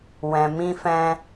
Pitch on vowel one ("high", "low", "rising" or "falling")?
low